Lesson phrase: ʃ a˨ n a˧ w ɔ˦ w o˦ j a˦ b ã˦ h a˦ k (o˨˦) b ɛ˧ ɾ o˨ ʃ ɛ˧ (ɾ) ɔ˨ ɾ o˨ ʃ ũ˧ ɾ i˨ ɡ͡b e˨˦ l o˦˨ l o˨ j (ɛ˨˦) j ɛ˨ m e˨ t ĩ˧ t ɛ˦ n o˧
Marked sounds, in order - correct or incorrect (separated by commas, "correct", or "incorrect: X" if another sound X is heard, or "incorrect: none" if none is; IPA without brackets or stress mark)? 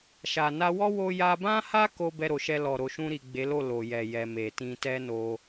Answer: incorrect: o˦, incorrect: l, incorrect: ɛ˨